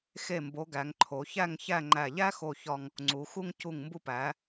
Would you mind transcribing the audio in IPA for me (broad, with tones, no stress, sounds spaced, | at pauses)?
x e˧˩ m b o˩˧ ɡ æ˩˧ ŋ ǃʰ o˩˧ ç æ˥˧ ŋ ç æ˥˧ ŋ͡ǃ æ˧˩ ʎ æ˥ x o˧˩ ç ɒ˧ ŋ | ŋ͡ǀ u˩˧ x u˧ ŋ c u˧˩ ŋ m b u˧ p æ˩˧